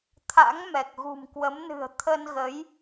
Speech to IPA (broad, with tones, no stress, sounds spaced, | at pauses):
t̪ʰ a̰˧˥ ŋ m ɛ˨˩ k̚ ɣ ṳ˨˩ m k w ə˨˦ m n ɨ̤˨˩ ə̯ t̪ʰ ə˧ n ɣ ə˨˦ j